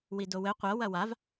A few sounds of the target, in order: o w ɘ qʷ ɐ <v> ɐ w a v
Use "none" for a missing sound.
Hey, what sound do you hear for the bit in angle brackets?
w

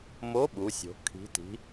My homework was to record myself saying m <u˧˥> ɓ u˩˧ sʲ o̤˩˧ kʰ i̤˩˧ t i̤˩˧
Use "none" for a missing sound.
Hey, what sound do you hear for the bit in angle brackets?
o˧˥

